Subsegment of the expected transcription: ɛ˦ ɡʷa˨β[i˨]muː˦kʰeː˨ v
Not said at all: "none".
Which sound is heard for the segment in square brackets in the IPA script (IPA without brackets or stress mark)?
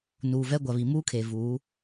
i˨